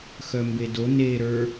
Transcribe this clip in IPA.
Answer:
x œ m b e d o n e ɾ ə˞

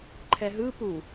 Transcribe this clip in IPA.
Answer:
ǃʰ ɛ ɦ ɯ p u

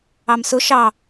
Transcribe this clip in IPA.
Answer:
ɑ m s ʊ ʃ ɑ

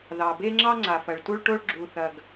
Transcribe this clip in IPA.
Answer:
ð ɑ˩ b e˥ ŋ͡ǁ ɑ˥ ŋ͡ǀ a˩ f ɐ˩ ɭ t u˥ ɭ ʈ o˥ ɭ ɡ͡ǁ u˩ θ ɐ˩ ɡ

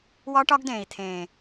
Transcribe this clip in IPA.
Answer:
w ɒ˦ ʈ ɒ˦ ɡ d ẽː˨ i̯ t̪ʰ ẽː˨

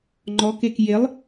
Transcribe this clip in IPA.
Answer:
ŋ͡ǃ ɔ k e k j e lˠ

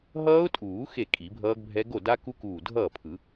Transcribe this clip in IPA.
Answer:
ɦ ʌː˦˥ ʊ̯ tʼ uː˨˩˦ x e˥˩ kʼ i˨˩˦ bʱ ʌː˦˥ ɡ bʱ ɛ˦˥ ɡ o˥˩ d a˦˥ k u˦˥ k uː˧˩ dʱ ʌː˥˩ pʰ ɯ˨˩˦

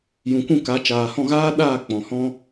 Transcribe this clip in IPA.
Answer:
j ũ˨ kʷ ũ˦˨ k a˨˦ t͡ʃ aː˨ h ɔ̃˦˨ ɣ aː˦ ɗ aː˦˨ k͡p ɔ̃˨ h ɔ̃˦

